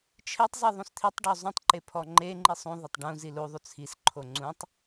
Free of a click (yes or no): no